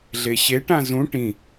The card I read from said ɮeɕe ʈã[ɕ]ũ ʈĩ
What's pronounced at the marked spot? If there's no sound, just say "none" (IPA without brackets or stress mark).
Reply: z